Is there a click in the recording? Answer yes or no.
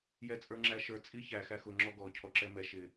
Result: yes